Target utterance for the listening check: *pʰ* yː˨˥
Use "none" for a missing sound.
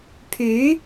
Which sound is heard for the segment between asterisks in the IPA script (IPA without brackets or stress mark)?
pʰ